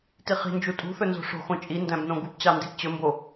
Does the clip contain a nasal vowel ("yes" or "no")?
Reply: yes